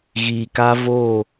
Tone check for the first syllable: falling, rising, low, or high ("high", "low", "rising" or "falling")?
low